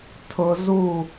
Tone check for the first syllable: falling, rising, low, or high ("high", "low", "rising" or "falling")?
low